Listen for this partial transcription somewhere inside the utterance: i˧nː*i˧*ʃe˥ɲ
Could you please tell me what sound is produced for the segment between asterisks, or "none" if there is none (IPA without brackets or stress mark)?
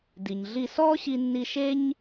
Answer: i˧